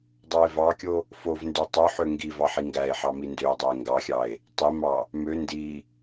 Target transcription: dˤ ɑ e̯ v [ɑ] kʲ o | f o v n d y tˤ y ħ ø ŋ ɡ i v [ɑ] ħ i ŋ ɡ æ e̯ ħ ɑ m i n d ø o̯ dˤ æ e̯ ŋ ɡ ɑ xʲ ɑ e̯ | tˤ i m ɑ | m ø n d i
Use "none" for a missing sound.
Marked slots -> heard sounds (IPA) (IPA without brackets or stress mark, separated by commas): ɑ, ɑ